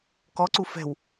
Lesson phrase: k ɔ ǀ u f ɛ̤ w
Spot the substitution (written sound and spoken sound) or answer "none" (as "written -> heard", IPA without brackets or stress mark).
none